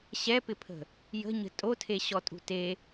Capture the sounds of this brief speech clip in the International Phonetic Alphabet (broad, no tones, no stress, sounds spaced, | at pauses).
ɕ ɛ p ɪ pʰ ə̤ | j ə̤ ɲ ə̤ tʼ o tʰ e ɕ ɔ tʼ ṳ t e